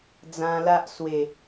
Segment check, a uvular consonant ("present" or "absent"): absent